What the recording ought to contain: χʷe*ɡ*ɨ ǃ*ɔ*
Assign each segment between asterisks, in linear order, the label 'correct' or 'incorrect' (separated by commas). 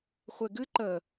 correct, incorrect